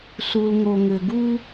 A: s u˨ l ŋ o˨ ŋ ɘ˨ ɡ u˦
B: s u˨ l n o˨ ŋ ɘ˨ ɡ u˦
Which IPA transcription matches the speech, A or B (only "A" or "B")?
A